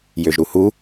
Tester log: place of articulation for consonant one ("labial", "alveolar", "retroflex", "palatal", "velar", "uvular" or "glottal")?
palatal